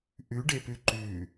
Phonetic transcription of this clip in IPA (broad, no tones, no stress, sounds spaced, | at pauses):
ʔ ʉ ɖ e p ʉ ǃ ʉ